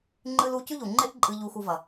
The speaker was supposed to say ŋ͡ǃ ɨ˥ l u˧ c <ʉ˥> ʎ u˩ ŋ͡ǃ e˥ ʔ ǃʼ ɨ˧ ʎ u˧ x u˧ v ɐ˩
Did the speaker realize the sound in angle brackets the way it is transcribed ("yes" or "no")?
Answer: yes